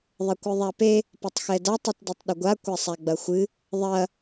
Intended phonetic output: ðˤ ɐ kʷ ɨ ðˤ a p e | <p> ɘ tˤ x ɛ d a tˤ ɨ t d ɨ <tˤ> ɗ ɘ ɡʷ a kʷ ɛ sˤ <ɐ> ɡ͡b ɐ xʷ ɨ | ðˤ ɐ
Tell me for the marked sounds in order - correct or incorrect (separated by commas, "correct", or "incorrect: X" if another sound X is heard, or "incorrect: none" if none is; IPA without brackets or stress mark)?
correct, correct, incorrect: a